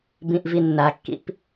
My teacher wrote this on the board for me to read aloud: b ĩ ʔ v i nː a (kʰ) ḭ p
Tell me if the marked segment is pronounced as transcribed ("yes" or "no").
no